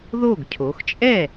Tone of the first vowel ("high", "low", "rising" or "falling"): falling